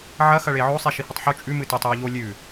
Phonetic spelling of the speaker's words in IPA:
ʕ ɐ x ɐ ɭ e ʕ o sˤ i ʃ i h ɨ tˤ ħ u t͡ʃʼ ʉ m ɨ t e tˤ j o ʎ o lʲ ʉ

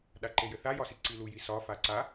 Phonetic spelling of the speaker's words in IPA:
ɗ a ǃ e j ɘ θ a j ɒ s i ǀ i l u j i s ɒ f a ǀ a

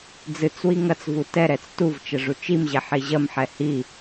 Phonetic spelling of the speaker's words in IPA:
d͡z ɨ t͡s w i ŋ ɐ t͡s v u t ɛ ɾ ɛ t͡s t u v t͡ʃ ɐ ʐ u t͡ʃ i m ʑ ɛ ħ i ʑ ɐ m ħ ɛ h i

